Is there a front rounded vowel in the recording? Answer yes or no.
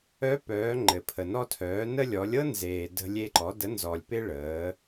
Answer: yes